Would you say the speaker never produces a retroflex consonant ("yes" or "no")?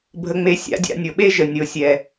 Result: yes